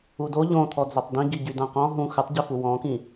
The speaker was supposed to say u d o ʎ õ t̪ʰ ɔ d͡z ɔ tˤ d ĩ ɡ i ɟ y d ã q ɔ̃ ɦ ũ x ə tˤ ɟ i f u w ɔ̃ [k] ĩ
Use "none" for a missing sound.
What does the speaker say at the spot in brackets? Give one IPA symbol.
k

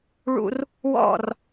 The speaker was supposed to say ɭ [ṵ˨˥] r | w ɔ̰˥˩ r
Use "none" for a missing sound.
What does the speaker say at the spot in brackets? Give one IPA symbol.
ṵ˧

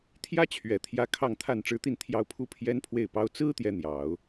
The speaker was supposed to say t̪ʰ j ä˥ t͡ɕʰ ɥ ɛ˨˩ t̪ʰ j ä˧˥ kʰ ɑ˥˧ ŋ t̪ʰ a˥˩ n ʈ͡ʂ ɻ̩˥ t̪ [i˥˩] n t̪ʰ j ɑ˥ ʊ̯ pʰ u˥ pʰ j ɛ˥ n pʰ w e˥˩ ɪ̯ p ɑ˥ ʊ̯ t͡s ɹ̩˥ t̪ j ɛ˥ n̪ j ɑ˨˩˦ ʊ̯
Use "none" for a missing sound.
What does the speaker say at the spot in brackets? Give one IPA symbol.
i˥˩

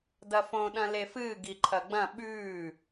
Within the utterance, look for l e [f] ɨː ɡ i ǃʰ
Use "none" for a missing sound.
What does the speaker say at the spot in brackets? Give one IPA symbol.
f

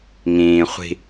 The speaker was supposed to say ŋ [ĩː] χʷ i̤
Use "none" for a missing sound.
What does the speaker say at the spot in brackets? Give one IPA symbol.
ĩː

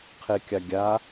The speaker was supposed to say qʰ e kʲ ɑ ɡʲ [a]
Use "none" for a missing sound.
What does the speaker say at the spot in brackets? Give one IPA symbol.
a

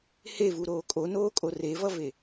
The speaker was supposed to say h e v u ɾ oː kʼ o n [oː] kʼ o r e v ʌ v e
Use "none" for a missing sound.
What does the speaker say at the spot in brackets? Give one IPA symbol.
oː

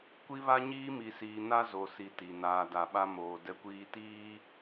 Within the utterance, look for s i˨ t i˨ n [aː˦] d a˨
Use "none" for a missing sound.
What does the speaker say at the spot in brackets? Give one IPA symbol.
aː˨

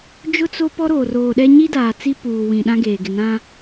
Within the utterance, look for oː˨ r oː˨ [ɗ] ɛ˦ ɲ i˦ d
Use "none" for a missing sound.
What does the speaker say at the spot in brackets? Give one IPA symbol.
ɗ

